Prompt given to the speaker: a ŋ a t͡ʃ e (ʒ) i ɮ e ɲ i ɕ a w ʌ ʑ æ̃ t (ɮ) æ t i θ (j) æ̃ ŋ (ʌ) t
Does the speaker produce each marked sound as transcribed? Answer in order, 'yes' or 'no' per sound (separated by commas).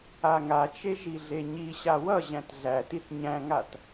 yes, yes, no, no